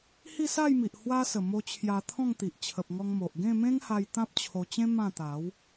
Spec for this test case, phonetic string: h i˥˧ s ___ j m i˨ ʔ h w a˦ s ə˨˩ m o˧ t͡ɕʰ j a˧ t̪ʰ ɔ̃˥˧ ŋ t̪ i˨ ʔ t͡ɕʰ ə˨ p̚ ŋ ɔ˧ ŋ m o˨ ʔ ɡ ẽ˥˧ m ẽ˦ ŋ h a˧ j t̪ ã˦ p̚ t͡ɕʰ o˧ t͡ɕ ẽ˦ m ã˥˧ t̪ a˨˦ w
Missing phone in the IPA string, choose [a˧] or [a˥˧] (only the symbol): a˥˧